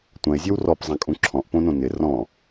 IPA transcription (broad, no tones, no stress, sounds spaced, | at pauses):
tʷ ɐ̃ e̯ zʲ ɔ w r ɔ p zˤ æ̃ kʼ ũ ǁʰ ɔ̃ ʔ p õ n õ n ɪ r ɔ̃